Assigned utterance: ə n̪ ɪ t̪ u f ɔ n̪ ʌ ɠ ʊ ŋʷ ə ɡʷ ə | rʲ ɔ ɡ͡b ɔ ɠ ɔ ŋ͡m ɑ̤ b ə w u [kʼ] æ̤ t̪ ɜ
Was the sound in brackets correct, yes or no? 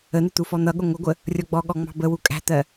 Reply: yes